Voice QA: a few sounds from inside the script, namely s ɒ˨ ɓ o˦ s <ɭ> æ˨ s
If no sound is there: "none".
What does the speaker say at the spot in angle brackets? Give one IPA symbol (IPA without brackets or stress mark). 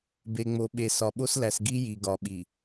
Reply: l